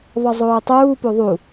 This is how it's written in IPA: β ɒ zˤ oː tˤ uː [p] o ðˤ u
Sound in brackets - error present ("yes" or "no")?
no